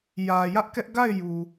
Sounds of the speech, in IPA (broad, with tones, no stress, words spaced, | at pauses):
jä˨jä˦ʔkɛ˦ʔ ɡa˦˨ɪ̯ ju˨